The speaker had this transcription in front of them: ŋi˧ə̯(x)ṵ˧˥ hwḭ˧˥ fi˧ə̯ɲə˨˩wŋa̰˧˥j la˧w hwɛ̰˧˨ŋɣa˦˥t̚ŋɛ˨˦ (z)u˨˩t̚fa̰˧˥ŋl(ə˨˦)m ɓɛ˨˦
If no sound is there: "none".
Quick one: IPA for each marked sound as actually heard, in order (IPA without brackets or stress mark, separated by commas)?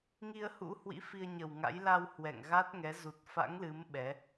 h, z, ɨ˨˦